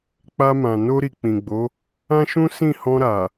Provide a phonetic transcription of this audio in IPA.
k͡p a˧ m ã˨ n o˧ ɾ i˨ k͡p ĩ˨ ɡ͡b o˨˦ | ã˦ ʃ ũ˦ s ĩ˦˨ h ɔ̃˧ ɾ a˨

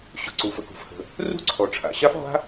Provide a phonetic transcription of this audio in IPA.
ɕ ʊ˩ ǀ u˩ f ə˩ k ṳ˩ f h ə̤˩ | r ṳ˥ ǀʰ ɔ˩ ʈ͡ʂʰ a̰˩ ɕ a˥ f ʁʷ a̤˥

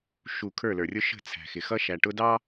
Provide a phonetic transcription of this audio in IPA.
ʃ u˨ kʰ ə˞˦˨ l ə˞˨ rʲ ʊ˦ ʃ ə̤˦˨ t͡sʰ æ̤˨ x ɪ˨ x ʌ˦ ʃ æ˨ ʈ ʊ˦ d ɑ˦

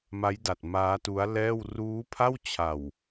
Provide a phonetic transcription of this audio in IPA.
m a˦˥ j d a˨˩ t̚ m aː˦˥ t u˦˥ a̯ l ɛː˥˩ w r uː˦˥ pʰ a˥˩ w t͡ɕʰ a˨˩ w

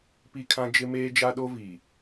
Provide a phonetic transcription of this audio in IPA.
p i˦ kʰ ã˦ d͡ʒ ɪ˦ m eː˦ d͡ʒ a˦ ɗ o˦ v i˨

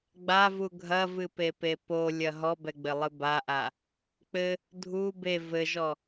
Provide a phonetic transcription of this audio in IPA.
ɡ͡b a v u ɡʱ ɐ v ɨ p e p e p o lʲ ɐ ɦ ɔ b ɛ ɡ͡b ɘ lˠ ɨ b a ʔ a | k͡p ɘ | dʱ u b e v ɘ ʒ ɔ

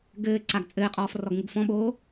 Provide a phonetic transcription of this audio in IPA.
ɡ ɘː ǀ a ɡ t͡sʼ ɘː qʼ ɔː f r ɔ ɡ ŋ u ɡ f ɔ̃ ɓ oː

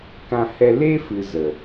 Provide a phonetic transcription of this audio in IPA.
k ã˧ h ɛ˧ l e˦ f ɨ˨ z ə˨

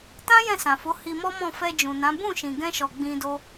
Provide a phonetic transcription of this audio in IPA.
t ã˦ j ɛ̃˦˨ s ã˨ f o˨˦ h i˧ m ɔ˦ m ɔ̃˦˨ f ɛ˧ d͡ʒ ũ˨ n ã˨˦ b ũ˦˨ ʃ ĩ˨ ɡ ɛ̃˧ ʃ ɔ˨ ɡ͡b ĩ˧ d o˦

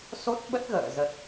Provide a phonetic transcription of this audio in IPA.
s o˦˥ t̚ ɓ ə˦˥ t̚ ɣ ə̰ː˧˨ z ə˨˩ t̚

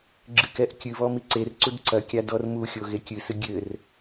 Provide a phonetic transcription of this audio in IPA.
ɡ͡ǁ ɨ k ɛ ʔ kʲ ɨ β ɔ m i ǀ e r ǀ u d ǀ ɐ kʲ a d ɔ r m u xʲ o ɣ e kʲ ɨ s ɨ ɡʲ ɘ r

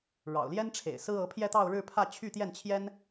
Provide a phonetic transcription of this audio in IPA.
ɻ ɑ̰˨˩ ʊ̯ l j ɛ˥ n ʈ͡ʂʰ ḛ˨˩ ɪ̯ s ɹ̩˥ ɤ˧˥ pʰ j ɛ˥˧ t̪ ɑ˥˧ ʊ̯ ɻ ɻ̩˥˧ pʰ ä˥˧ t͡ɕʰ y˥˧ t̪ j ɛ˥˩ n t͡ɕʰ j ɛ˥ n

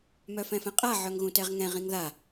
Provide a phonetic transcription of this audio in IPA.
m œ f ɛ̃ f ɛ̃ qʼ a ʕ œ ŋ ɣ ũ t ɛ ʁ ŋ ɛ̃ ʁ ĩ ŋ ð a

